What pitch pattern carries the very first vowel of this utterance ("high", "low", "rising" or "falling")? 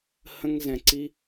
high